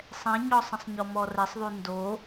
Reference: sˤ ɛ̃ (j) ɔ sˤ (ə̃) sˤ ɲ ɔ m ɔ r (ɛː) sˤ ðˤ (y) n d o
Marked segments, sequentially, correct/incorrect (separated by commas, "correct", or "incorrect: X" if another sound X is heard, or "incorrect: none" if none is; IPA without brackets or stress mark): incorrect: ɲ, incorrect: ɐ̃, incorrect: ɛ, correct